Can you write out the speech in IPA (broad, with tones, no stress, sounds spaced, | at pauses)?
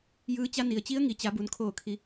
j ɯː˧˥ t͡ɕ a˧˥ n i˩ ə̯ t͡ɕ i˧˥ ə̯ ŋ i˩ t͡ɕ a˩˧ b u˩ n kʰ oː˧˩ kʰ i˩˧